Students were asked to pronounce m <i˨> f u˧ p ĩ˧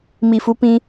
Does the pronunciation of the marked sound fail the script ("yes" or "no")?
no